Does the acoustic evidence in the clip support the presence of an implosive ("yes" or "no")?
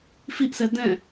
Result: no